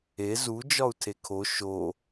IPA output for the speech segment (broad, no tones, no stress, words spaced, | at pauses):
e zud͡ʒɒu̯ tʰekʰo ʃo